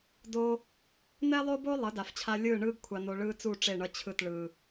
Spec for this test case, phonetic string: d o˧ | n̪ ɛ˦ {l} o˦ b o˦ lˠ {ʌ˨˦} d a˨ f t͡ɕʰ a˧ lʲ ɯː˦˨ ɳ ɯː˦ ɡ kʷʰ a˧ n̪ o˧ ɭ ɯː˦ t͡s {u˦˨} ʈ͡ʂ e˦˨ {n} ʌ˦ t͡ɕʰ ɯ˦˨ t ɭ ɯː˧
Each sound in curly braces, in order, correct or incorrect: incorrect: lˠ, correct, correct, incorrect: ɳ

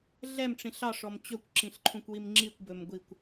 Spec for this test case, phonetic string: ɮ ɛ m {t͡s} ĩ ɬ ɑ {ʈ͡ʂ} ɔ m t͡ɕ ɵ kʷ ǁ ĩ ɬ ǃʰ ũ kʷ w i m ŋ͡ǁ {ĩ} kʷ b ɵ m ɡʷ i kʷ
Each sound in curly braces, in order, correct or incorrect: incorrect: ʈ͡ʂ, incorrect: ʂ, incorrect: i

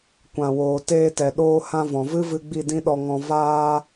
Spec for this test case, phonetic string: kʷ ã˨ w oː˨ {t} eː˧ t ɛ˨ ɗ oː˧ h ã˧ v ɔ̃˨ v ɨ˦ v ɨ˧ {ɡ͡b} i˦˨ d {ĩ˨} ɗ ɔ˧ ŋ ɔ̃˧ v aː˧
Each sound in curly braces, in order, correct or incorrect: correct, correct, incorrect: ĩ˦

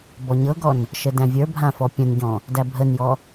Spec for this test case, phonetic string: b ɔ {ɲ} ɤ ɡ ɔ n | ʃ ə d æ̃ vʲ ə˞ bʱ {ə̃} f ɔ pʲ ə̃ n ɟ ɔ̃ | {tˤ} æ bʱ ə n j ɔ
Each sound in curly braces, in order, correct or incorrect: correct, incorrect: ã, incorrect: d

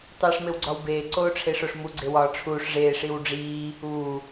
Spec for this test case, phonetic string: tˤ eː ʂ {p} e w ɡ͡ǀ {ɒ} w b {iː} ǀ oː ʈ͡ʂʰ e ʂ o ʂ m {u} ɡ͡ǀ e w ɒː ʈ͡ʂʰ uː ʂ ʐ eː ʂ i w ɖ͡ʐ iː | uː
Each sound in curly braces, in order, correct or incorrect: incorrect: m, correct, incorrect: eː, correct

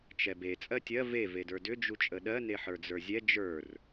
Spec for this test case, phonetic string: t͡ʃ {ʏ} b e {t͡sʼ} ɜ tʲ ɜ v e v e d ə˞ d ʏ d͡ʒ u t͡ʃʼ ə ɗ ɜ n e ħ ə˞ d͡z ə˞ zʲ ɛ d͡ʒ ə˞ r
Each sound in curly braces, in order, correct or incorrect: incorrect: ɛ, correct

